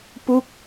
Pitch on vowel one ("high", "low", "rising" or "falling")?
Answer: falling